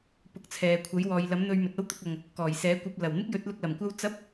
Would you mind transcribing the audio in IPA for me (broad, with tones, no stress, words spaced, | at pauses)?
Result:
pʊ˨˥k̚t͡sʰɛː˨ kʷʰɐ˨˥jwɔː˨jlɐ˨˥m n̪ɵ˧ɥmɵ˨t̚ɐ˥w t̪ʊ˧k̚ɐ˨ŋ | kɔː˨˩jsɛː˨˥kʷɐ˧p̚ lɐ˨˩w n̪ɪ˥k̚jɵ˨˥t̚lʊ˧k̚ lɐ˨˩m kʷɐ˥w t͡sɐ˥p̚